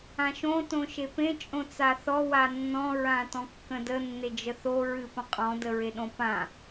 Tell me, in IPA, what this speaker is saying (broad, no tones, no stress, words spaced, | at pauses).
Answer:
ãʃõ tõʃepẽ t͡ʃʼõt͡saθɔ wanːɔ̃ ɹãtɔ̃kːə̃də nːed͡ʒəθo ɹɨpə̃qʼɔ̃ dəɹeɗõpã